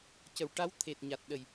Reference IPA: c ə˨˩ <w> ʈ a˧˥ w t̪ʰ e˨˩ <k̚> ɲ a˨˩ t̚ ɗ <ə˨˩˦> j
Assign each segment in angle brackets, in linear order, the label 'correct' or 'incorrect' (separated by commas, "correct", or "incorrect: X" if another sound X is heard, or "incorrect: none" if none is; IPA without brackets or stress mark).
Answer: correct, incorrect: t̚, incorrect: ə˨˩